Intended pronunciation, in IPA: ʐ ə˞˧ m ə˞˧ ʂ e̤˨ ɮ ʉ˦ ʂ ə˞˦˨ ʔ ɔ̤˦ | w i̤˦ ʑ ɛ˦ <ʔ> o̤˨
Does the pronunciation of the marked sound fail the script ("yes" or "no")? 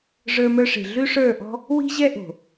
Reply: no